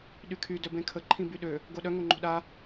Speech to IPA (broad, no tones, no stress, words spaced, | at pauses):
ɗykʰy dœbẽkʰə ǃʰĩbyɗø | ɡoɗœ ŋoŋ͡ǃo̤ɗa